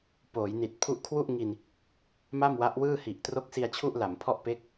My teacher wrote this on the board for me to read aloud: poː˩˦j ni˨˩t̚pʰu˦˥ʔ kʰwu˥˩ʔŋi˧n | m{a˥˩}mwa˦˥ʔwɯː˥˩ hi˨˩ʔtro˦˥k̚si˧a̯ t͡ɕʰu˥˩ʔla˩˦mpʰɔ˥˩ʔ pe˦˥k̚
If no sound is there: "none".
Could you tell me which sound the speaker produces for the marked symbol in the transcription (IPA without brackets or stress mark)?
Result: a˥˩